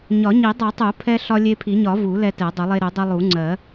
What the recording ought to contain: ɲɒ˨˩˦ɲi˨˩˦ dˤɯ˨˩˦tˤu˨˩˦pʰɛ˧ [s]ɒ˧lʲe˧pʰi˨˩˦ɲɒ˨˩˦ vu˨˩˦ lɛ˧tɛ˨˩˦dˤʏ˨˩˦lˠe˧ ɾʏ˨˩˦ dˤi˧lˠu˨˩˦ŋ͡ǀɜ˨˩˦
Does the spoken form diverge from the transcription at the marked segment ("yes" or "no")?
yes